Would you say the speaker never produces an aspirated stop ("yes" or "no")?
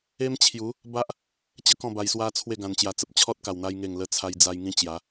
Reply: no